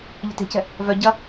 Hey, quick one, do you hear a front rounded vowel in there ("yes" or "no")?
yes